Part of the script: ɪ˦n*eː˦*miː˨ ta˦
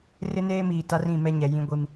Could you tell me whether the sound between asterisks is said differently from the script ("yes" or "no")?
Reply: no